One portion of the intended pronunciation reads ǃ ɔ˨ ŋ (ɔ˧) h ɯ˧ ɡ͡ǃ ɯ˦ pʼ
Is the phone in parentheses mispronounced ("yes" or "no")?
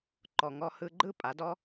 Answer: no